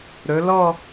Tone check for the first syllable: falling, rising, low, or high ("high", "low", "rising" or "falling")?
rising